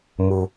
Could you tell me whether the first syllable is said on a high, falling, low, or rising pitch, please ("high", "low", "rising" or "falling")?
low